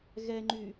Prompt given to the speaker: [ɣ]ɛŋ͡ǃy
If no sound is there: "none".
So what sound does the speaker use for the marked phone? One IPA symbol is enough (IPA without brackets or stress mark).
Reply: ɣ